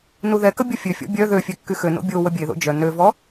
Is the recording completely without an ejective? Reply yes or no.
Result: yes